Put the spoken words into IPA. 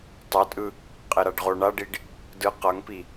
tˤotʼɯ | qʼeɾaɖʁo ɳaɖiɖ | dɯ qʌŋpi

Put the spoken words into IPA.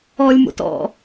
ɔlʲmo̰t ɔ̰

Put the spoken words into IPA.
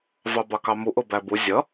vɑbɑkɑmu ʔʊbæbu zʲʌ

